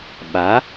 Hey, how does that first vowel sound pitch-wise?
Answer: rising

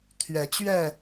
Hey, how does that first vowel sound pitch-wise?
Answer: rising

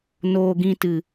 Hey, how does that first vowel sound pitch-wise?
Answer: low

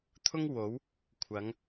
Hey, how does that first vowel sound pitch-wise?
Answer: high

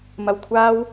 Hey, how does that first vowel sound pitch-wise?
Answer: low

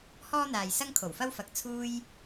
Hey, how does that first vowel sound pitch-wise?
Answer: high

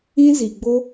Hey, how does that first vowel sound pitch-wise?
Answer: high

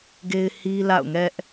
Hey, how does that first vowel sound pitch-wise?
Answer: high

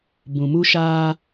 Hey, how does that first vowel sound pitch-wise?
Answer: low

